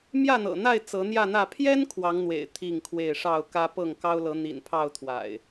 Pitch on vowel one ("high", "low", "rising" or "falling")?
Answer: falling